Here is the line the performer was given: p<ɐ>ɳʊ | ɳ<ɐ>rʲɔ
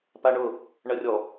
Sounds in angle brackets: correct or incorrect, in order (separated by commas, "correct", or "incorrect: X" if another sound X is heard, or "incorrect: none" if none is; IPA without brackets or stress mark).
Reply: incorrect: a, correct